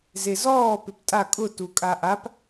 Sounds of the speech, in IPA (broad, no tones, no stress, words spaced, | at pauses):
zezɔː pɪptʼa kʼʊ tukʼaʔap